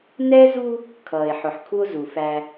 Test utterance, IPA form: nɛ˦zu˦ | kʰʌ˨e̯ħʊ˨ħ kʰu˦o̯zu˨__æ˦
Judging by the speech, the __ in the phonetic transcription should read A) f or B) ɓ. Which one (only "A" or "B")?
A